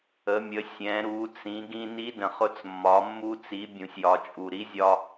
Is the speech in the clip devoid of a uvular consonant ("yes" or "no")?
no